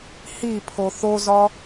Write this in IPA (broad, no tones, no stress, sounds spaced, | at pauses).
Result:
h i pʰ o θ o z ɒ